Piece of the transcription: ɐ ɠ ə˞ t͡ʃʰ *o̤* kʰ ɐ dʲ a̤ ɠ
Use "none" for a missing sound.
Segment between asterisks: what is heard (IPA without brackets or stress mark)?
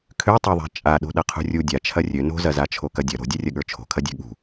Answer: o̤